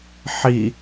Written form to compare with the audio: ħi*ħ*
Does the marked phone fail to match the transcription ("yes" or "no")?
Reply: yes